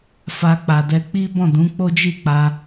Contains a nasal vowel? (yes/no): yes